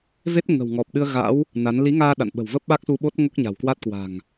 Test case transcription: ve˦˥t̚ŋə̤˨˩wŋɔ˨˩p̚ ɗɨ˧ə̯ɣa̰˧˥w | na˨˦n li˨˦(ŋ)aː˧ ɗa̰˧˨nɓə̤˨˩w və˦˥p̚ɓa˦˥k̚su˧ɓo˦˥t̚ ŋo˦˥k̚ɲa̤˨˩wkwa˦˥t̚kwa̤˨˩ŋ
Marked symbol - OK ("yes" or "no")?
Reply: yes